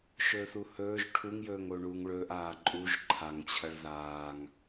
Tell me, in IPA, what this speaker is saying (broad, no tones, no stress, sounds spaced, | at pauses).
ʃ ɵː θ u h ɵː ʒ ʈʰ u ŋ j ɵː ŋ o ɳ uː ŋ ɭ ɵː ʔ aː ǃʼ u ʒ ǃʰ a ŋ t͡ɕʰ ɐ ɭ ð aː ŋ